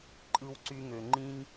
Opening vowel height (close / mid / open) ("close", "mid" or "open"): close